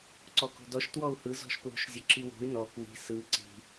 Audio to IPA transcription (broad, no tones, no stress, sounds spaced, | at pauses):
ǀ ɔ k o̤ d ɔ ʃ t w ɔ u̯ h ɯ z ɔ̤ ʃ p l o̤ ʃ zʲ o ǁ i w o̤ y̯ n ɔ k w i̤ s ɯ ǀ i̤